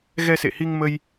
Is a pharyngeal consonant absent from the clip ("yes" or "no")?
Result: yes